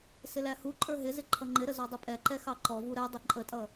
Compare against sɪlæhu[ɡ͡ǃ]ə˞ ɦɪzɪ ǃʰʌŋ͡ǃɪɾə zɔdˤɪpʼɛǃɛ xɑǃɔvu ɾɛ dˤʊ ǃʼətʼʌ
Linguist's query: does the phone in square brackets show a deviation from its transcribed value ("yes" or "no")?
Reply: yes